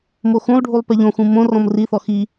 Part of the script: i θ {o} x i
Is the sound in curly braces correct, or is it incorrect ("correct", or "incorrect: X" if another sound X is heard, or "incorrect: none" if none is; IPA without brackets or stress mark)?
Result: incorrect: ɔ